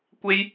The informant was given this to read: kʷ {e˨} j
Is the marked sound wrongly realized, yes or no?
yes